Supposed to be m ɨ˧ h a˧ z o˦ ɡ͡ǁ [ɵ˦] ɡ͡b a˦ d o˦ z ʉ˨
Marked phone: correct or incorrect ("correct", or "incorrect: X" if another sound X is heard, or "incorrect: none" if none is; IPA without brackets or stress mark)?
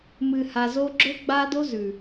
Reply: correct